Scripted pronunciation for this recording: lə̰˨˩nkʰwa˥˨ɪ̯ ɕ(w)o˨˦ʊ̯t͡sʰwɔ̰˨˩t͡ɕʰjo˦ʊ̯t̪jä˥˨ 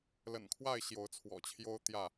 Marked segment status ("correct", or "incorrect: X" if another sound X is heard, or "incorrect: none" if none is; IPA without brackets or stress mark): incorrect: j